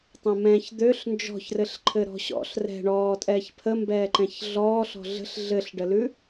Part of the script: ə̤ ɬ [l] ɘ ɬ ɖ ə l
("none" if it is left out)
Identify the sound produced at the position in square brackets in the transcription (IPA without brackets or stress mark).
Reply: ɮ